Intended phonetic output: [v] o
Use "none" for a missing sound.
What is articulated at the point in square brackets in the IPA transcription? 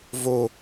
v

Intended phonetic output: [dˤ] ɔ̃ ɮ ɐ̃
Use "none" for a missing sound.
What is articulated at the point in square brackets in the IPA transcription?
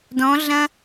d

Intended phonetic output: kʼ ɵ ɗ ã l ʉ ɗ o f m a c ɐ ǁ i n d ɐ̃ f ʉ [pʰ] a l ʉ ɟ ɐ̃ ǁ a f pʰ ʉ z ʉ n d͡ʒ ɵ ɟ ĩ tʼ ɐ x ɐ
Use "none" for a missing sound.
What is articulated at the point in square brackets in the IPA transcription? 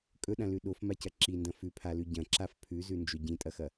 pʰ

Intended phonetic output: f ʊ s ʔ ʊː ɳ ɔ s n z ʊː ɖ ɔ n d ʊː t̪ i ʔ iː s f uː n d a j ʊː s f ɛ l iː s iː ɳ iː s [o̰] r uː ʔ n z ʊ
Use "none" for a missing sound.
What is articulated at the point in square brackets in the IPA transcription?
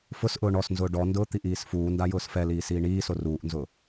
o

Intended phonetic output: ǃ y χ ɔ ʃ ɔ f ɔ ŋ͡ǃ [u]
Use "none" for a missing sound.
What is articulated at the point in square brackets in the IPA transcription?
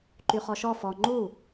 u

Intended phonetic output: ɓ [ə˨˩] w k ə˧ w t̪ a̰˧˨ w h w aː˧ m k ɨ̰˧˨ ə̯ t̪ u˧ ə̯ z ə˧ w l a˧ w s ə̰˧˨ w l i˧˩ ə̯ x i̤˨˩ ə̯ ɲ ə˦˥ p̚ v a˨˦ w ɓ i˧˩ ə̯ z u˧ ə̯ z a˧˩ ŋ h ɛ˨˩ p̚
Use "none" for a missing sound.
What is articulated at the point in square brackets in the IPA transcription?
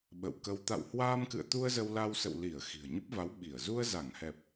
ə̰˧˨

